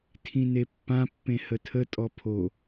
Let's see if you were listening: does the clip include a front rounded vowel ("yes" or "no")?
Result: no